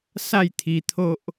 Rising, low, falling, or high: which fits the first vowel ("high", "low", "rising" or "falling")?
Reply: falling